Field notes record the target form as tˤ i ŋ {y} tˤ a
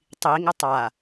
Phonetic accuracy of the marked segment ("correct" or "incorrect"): incorrect